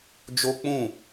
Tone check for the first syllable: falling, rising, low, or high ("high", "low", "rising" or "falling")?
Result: high